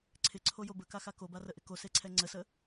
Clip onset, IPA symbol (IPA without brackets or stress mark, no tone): ǀʰ